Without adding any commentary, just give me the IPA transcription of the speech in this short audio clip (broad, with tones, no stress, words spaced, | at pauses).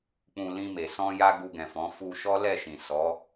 k͡pũ˧ lĩ˧me˨ sɔ̃˧ ja˧ ɡu˧ɡɛ̃˨fɔ̃˨˦ fu˧ʃɔ˦ lɛ˦˨ʃĩ˨ sɔ˨˦